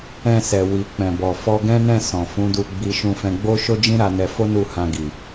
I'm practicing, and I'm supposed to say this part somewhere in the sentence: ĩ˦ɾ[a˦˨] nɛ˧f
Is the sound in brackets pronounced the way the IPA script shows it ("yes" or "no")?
no